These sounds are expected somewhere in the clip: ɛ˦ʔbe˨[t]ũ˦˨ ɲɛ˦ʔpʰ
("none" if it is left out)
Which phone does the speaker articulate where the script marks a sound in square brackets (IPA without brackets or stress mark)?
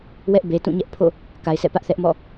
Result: t